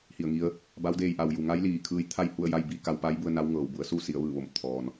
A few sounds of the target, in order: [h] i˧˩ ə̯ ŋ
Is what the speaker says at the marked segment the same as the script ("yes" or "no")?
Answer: yes